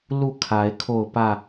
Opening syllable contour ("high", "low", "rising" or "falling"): falling